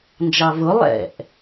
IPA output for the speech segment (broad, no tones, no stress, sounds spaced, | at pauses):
n d͡ʒ ɑ v ʊ lˠ ɛ̰ ʔ